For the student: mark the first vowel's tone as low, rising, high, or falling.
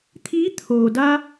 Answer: rising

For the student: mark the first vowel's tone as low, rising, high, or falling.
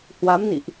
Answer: rising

